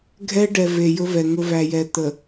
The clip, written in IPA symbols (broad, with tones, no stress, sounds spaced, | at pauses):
ɡʱ ɛ˦ ɖ ɛ˨ v e˨ j ɵ˦ v ɛ˨ ŋ ɵ˦ v æ˨ j ɛ˨ t̪ ə˨